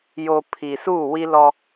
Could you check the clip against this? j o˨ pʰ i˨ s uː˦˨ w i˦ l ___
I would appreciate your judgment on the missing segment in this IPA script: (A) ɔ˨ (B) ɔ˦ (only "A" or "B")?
B